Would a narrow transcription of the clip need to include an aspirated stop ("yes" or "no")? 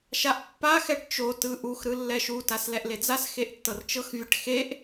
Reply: no